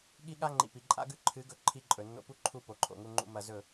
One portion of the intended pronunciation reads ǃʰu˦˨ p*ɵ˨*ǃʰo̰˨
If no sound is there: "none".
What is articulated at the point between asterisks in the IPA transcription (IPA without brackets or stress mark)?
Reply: o˨